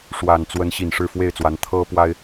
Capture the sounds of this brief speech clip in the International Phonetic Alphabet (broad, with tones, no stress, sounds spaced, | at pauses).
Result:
ʂ w a˨˩ n t͡s w ə˨˦ n ɕ i˨˩ n ʂ ɻ̩˥˨ f w e˥˨ ɪ̯ t͡s w a˨˦ n t̪ʰ ɤ˦ p w a˦ ɪ̯